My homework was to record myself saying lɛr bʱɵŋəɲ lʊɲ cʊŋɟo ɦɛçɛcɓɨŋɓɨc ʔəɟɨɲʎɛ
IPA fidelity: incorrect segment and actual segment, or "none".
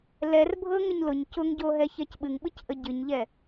ɵ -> ɤ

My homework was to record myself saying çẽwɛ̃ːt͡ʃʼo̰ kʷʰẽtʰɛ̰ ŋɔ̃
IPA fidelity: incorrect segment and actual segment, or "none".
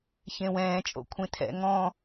none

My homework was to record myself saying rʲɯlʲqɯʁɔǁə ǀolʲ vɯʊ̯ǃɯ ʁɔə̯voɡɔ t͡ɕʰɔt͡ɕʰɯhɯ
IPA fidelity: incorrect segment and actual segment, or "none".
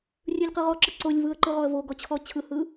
ʊ̯ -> ə̯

